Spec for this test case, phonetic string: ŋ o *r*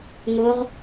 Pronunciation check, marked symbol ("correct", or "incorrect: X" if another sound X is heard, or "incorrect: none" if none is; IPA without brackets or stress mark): incorrect: ʁ